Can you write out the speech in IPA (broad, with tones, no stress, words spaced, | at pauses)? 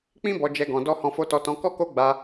k͡pĩ˦bɔ˧d͡ʒɛ˧ ɡɔ̃˧dɔ˦ hɔ̃˧fo˧tɔ˧tɔ̃˧ kɔ˦ ko˦ɡ͡ba˧